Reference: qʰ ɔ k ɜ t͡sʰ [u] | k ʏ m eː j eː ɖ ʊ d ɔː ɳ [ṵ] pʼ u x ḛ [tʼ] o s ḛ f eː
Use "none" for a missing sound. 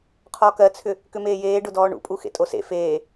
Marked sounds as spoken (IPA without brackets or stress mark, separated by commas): ʏ, ṵ, tʼ